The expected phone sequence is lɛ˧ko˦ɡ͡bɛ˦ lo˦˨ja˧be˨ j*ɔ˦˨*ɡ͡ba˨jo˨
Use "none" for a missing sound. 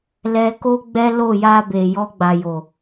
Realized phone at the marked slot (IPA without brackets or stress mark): ɔ˧